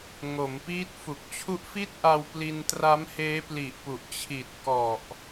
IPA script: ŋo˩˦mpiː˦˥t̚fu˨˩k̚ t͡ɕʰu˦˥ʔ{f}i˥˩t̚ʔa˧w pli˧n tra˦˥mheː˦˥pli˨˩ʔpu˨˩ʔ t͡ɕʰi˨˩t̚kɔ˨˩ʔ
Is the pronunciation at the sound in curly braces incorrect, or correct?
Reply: correct